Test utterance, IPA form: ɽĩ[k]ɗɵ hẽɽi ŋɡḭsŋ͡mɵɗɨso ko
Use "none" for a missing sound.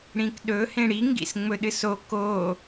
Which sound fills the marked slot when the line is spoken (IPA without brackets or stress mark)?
k